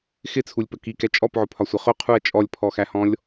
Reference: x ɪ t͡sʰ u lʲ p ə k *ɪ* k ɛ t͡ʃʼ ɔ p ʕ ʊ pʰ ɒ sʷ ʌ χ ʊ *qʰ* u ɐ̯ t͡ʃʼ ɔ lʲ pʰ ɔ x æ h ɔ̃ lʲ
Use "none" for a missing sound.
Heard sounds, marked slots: i, qʰ

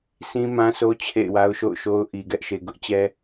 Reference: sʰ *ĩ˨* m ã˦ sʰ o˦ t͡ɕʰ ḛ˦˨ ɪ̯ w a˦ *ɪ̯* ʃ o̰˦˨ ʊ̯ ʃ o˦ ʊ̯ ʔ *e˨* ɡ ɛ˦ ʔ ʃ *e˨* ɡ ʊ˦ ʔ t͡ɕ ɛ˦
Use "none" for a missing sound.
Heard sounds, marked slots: ĩ˦, ʊ̯, i˨, e˨

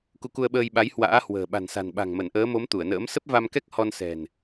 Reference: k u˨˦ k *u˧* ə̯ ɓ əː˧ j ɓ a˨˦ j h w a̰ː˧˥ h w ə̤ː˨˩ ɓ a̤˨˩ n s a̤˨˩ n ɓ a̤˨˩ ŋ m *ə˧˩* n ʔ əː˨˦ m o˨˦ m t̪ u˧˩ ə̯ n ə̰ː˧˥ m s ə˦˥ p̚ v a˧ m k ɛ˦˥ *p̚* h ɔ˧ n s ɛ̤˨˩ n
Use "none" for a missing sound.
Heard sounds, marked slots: u˧, ə˧˩, k̚

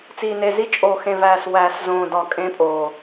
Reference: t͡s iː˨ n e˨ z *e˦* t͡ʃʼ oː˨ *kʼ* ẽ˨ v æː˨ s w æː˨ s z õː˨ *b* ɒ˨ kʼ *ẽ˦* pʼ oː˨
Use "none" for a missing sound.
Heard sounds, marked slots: i˦, x, d, ẽ˦

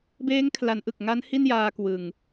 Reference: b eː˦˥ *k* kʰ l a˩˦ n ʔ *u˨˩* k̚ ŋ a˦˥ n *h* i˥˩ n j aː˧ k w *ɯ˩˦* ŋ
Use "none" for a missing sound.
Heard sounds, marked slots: ŋ, ɯ˨˩, h, ɯ˨˩

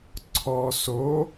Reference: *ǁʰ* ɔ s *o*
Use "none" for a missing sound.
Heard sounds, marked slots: ǀʰ, o

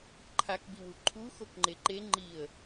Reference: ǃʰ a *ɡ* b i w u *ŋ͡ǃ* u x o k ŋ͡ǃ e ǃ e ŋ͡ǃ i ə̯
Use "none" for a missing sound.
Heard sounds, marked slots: k, ǃʰ

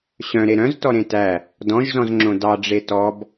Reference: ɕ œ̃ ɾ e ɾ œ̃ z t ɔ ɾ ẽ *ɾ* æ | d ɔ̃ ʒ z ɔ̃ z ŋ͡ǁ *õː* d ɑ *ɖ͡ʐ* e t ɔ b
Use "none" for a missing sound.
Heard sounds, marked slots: t, õ, ɖ͡ʐ

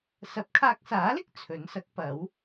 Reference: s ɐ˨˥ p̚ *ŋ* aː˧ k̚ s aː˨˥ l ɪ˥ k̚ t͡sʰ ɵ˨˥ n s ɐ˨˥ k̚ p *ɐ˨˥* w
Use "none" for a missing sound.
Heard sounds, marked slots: kʰ, ɐ˨˥

